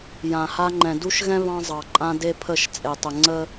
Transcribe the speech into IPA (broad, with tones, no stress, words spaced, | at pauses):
jã˨ha˦ŋ͡ǃɛ̃˨ du˦ʃɣɛ̃˦ βɑ̃˦zˤɑ˨ǃʼã˦ de˦pʰə˦˨ʃ t͡sʼe˨tˤə˨ ŋ͡ǀə˦